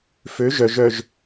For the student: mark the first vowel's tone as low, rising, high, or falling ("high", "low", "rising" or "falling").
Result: rising